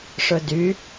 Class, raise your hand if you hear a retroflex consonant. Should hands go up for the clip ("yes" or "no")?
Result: yes